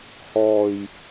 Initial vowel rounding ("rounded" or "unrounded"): rounded